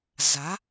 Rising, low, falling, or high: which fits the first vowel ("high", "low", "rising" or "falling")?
rising